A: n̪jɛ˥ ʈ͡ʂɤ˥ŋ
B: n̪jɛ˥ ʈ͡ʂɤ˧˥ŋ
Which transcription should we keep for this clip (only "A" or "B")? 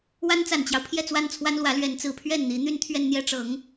B